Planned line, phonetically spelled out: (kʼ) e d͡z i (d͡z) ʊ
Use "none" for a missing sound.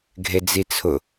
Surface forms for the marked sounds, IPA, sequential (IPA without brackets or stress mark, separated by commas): ɡʱ, t͡sʰ